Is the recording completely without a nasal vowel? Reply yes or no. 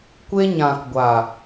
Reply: no